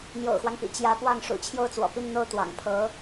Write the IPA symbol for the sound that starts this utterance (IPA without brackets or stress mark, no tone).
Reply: n̪